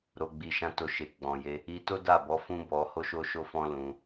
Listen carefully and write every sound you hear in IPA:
ɾ o˨ ɡ͡b i˨ ʃ ã˧ t o˧ ʃ e˨ ɡ͡b ɔ̃˨ j e˧ | i˧ t o˦ d a˦˨ b ɔ˨˦ f ũ˦ b ɔ˧ h o˦ ʃ o˦ ʃ o˦ f ɔ̃˦ l ũ˧

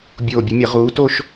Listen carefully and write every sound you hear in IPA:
bʲ oː˧˩ bʲ ɨ˨˦ mʲ ɐ˨˩˦ ʁ uː˨˦ t o˥˧ ʃ

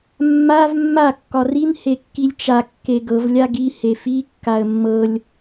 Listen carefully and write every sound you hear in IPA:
mː a v mː a kː ɒ r i n h e kː i lʲ t͡ʃ a kː e ɡ ɤ v lʲ a ɡ i h e f i kː a ə̯ mː ɤ lʲ

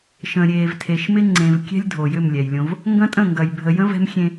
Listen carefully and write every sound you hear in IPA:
ʃ ə̃˨ ɾʲ eː˨ v tʰ e˨ ʃ m ɪ˦ ŋ͡ǀ ẽ˨ v kʲ ɛ̤˦ lʲ dʱ o˨ j ʏ˦˨ m lʲ ɛ˨ j lʲ õ˦ v | ŋ ɡ ɐ̃˦ tʼ ə̃˦˨ ŋ ɡ ɐ˨ j bʱ ə˨ j ə̃˦ v ɛ̤˦ m xʲ ẽ˦

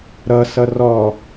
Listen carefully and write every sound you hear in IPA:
ɾ ʌ s ʌ r ɔ

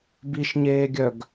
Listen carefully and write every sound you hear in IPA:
b i ʃ ɲ eː ɡʲ œ ɡ

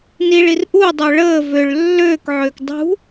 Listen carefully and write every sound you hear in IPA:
n i ɭ i r ʔ u dˤ ø ɭ əː v ø ɭ lː øː k ʕ øː k dˤ ṳ

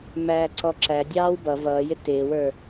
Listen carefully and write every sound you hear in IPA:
m æː ǀ ɔ ǁ æ dʲ ɑː w b ʌ v ʌː j ɪ t ɪː w ə˞

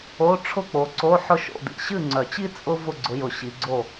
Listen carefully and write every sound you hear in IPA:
o˧˥˧ ʈ͡ʂʰ ʊ˥˨ k͡p o˨˦ ǀ o˧˥˧ ħ ʊ˥ ʃ o̰˧˥˧ d ḭ˥˨ ɕ ɨ˥˨ ŋ͡ǀ œ˨˩˦ t͡ɕ i˥ t͡sʼ ʊ˥ v ʊ˥˨ ɡ͡ǀ ʊ˨˦ j ʊ˨˩˦ ɕ i˨˦ ɡ͡ǀ o˥˨

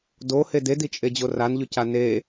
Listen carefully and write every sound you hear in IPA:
d o h e d e d i t͡ʃʼ e d͡ʑ o r a n ʎ ʉ c a n e

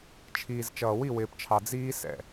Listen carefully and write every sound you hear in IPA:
t͡ʃʰ iː˨ z t͡ʃ ʌː˨ w i˦˨ w ɪː˨ p t͡ʃʰ ɑ˨ d͡z iː˦ s ɛ̰˨

